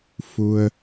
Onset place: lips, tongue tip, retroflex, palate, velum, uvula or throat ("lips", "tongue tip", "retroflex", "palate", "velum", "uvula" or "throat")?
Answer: lips